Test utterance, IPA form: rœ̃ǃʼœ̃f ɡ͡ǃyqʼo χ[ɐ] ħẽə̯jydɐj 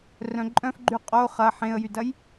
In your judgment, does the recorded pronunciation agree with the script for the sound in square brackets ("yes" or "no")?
yes